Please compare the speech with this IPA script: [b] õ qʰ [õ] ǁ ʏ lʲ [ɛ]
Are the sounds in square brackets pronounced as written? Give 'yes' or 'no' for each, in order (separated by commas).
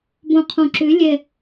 yes, yes, yes